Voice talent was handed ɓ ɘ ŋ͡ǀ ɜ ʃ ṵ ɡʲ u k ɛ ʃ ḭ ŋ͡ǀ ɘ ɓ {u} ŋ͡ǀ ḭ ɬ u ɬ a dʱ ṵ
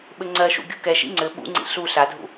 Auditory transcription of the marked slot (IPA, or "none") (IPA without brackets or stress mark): ṵ